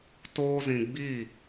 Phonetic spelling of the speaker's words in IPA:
toː˦zĩ˧ ɡ͡bi˦˨

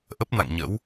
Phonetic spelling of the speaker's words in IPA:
ʔə˦˥p̚na̰˧˨ŋɲə̰˧˥w

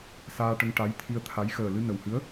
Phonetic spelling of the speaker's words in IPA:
saː˧ʈə˧ŋ ʈa˧˥jt̪ʰi˧ə̯t̪ʰa˧˥j xəː˨˩lɨ˧ nə˨˩whɨ˧˥ə̯

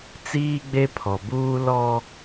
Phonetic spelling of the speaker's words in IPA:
t͡siː˦ɡ͡be˦pʰɔ˨buː˦ lɔ˦

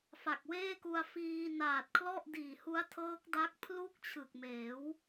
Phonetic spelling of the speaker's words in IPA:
fa˨˩k̚weː˥˩ku˧a̯fiː˧ naː˨˩t̚kʰlɔ˥˩ʔdiː˨˩hu˦˥a̯ tʰɤː˦˥k̚da˦˥k̚ pʰlu˥˩k̚t͡ɕʰɯ˨˩k̚ meː˩˦w

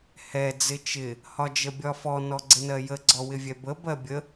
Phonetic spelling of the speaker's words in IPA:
hɛ d͡zɪt͡ʃɪ | hɒd͡ʒəbʲɒfɔ nɔɡ͡ǀɪnɜjə ɡ͡ǀɔwɪvʲɛbə bɜbʲə

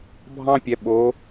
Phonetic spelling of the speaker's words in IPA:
bʱɑ̃˥pʲɛ˩˧ ɓo˩˧

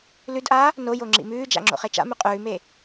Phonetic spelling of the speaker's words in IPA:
lʉdʔaː | nojo ŋ͡ǁḭmʉːd͡ʒa̰ ŋ͡ǁo̰χet͡ʃa̰mʉ qʼʉːme

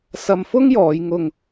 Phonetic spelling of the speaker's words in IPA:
sɐ˧mfʊ˥ŋjɔː˨˧jŋʊ˧ŋ

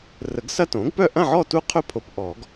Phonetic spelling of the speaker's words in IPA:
rə˨˩˦ɡsɐ˦˥tõ˩˥ɡpœ˥˨ ʔɐ̃˥˨ʕɔ˥˨tu˦˥qʰɵ˦˥ pʰo˨p ʔɔ˨˩˦ɡ

